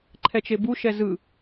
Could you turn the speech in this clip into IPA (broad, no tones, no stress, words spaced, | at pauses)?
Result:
ǃʰɛt͡ʃebu ʃɛzɯ